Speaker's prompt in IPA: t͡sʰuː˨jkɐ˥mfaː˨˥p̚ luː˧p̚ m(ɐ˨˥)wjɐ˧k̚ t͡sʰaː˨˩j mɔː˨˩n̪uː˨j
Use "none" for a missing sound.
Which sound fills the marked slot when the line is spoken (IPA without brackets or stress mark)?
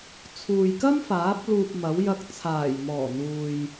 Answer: ɐ˨˥